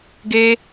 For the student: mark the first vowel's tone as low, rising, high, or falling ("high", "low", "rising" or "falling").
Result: high